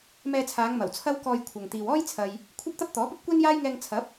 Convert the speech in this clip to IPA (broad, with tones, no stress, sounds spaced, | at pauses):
m ɛː˧ t͡sʰ aː˨˧ ŋ m ɐ˨˩ w t͡sʰ ɐ˥ w k ɔː˧ j kʷʰ ɐ˨ ŋ t̪ iː˨ w ɔː˥ j t͡sʰ ɐ˨ j | kʷʰ ɐ˥ p̚ t̪ ɐ˥ p̚ t̪ ɔː˨˥ p ɐ˥ p̚ kʷ ɛː˥ n j aː˥ j ŋ ɛː˧ ŋ t͡sʰ ɐ˨˥ p̚